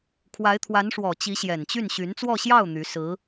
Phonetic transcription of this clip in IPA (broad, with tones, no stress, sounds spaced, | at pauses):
kʰ w a˧˥ ɪ̯ t̪ʰ w a˧˥ n ʂ w ɔ˨˩ t͡ɕ i˧˥ ɕ j ɛ˨˩ n t͡ɕ y˥˩ n ɕ y˧˥ n t͡s w ɔ˥˧ ɕ j ɑ˥˩ ʊ̯ n̪ y˧˥ s ɹ̩˧˥